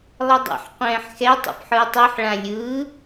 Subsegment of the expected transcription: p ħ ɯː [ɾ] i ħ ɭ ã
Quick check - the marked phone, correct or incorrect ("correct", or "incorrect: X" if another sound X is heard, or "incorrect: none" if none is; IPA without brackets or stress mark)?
incorrect: tˤ